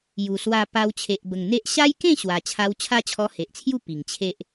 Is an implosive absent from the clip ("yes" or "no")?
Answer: yes